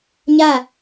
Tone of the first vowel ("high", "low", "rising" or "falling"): falling